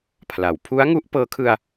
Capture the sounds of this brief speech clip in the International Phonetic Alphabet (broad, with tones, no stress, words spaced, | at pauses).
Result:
pʰla˩˦w pʰu˦˥a̯ŋu˦˥ʔ pɤː˦˥kʰɯ˧a̯